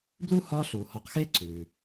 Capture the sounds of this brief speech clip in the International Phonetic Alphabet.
b l u˥ h ɒː˦ ɬ uː˩ h ɔ˨ q x eː˦ ǀʰ ʉː˩

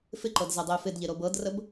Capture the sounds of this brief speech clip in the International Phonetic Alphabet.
f ɪ ǃ ɤ d z ɛ dˤ ɪː f ɪ d ʎ ɪ ɾ o b ɤ d r ə b

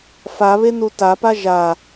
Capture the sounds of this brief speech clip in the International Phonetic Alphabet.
f a β e n u t a p a ʒ a

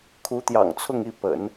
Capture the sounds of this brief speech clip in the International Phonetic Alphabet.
kʰ u˧˥ t̪ j ɑ̰˨˩ ŋ t͡sʰ ʊ˥˧ ŋ i˥˩ p ə̰˨˩˦ n

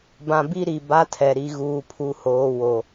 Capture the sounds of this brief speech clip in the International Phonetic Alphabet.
b ã˨ b i˦ ɾ i˨ b a˦ tʰ ɛ˨ ɾ i˨ ɣ uː˨ pʰ u˨ h oː˨ w o˨

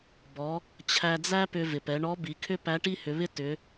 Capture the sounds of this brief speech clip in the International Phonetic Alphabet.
b ɔ˩˧ | t͡ɕʰ æ˧ d͡z æ˥ p ʏ˧ v ɪ˩ p ɛ˩˧ ɳ ɔ˧˥ b i˩˧ kʰ ʏ˥ p æ˧˥ ʈ i˥ h ʏ˩˧ β ɪ˥ t ʏ˩˧

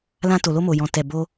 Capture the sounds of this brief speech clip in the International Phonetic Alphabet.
l ã˧ t o˨ l o˧ m o˨ j ɔ̃˨ t ɛ˨ b o˧

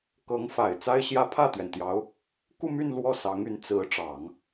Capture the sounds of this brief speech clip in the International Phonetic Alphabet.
k ɤ˧˥ ŋ f a˨˩ ɪ̯ t͡s a˥ ɪ̯ ɕ j ä˥ pʰ ä˥˩ t̪ ɥ ɛ˩ n t̪ j ɑ˧˥ ʊ̯ | k u˥˧ m y˥˧ n l w ɔ˥˩ s ɑ˧˥ ŋ y˧˥ n t͡s ɹ̩˧˥ ʈ͡ʂ ɑ˨˩˦ ŋ

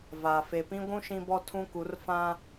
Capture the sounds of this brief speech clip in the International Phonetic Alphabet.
v a˨ f e˨ p ĩ˦ ɡʷ ũ˦ ʃ ĩ˦ b ɔ˦ tʰ ũ˦ k u˨˦ r f ã˦

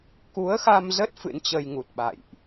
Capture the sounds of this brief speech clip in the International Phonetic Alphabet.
k u˨˦ ə̯ x a˧ m z ə˦˥ t̚ f ɨ̰˧˥ n t͡ɕ ə˧ j ŋ u˨˩ t̚ ɓ a̰˧˨ j ʔ

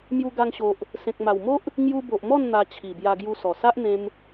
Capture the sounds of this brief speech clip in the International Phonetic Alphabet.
m j u˧ ɡ a˧ ŋ ɕ o˨ ʔ | s ẽ˨ k̚ m a˨˩ w m o˦ ʔ | ŋ j u˧ b o˨ ʔ m ɔ˥˧ n n̪ a˧ t͡ɕʰ i˨˩ b j a˧ ɡ j u˧ s ɔ˨˩ s a˦ ʔ n̪ ẽ˧ m

